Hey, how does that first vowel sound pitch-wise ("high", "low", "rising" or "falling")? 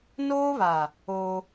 high